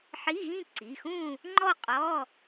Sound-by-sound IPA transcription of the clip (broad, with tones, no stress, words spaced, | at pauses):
ħi˧˥˧ɣĩ˥˧ ǀi˩˧˩xũ˥˧ | ŋ͡ǃɔ˥˧qʼɔ˧˥˧